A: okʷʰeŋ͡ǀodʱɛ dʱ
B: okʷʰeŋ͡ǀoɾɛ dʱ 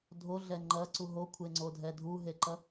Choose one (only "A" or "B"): A